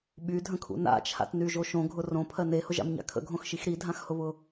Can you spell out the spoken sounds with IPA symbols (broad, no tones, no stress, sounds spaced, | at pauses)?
ɓ y dʱ ə̃ kʰ ṵ n a̰ t͡ʃʰ a̰ t n y ʒ o ʃ õ ɡʱ ʊ r õ pʰ ɜ n e h ʊ ʒ a̰ m ɲ a̰ kʰ ə̰ ɡʱ õ x ʃ i x ɾ i dʱ ã x h ʊ β ʊ